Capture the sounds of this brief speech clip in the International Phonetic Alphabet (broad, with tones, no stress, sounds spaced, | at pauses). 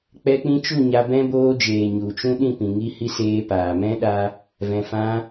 k͡p ɛ˧ k͡p ĩ˧ t͡ʃ u˦˨ ɲ a˧ b ɛ̃˦ b oː˧ d͡ʒ eː˨ ɲ u˨ t͡ʃ ũ˦ ɗ ĩ˦˨ p ĩ˨ ŋ i˧ h i˧ s eː˧ p aː˨ m ɛ̃˦ ɗ a˧ | v ɛ̃˨ f ã˧